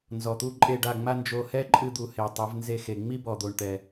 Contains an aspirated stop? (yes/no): no